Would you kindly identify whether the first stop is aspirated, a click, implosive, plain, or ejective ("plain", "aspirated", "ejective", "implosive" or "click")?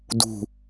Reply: plain